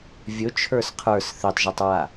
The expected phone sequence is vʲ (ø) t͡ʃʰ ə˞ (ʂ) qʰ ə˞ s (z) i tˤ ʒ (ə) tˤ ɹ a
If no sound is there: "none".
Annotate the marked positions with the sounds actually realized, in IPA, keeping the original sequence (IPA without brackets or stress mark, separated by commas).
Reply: ɵ, s, θ, a